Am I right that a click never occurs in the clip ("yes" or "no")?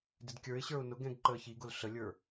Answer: no